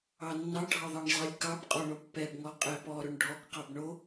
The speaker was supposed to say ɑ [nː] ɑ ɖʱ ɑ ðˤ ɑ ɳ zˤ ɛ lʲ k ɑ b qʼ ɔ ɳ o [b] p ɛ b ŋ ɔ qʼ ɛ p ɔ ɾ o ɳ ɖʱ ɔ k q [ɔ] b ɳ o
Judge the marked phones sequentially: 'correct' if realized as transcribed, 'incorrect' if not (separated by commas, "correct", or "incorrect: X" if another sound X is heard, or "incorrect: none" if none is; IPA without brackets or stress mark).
correct, correct, incorrect: ɑ